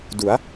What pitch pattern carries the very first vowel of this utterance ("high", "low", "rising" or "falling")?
rising